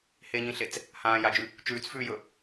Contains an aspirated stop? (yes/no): no